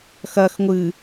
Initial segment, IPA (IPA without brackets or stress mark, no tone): x